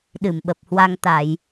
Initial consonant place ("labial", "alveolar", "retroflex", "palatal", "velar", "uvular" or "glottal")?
alveolar